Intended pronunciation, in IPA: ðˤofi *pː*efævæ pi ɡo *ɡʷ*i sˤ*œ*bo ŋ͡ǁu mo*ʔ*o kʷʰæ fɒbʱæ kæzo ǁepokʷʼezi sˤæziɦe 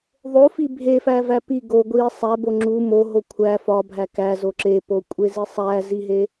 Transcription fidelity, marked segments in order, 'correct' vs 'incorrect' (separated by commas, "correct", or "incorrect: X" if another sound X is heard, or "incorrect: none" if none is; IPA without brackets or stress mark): incorrect: bʱ, correct, incorrect: æ, incorrect: ɦ